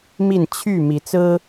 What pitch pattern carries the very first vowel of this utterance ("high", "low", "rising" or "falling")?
falling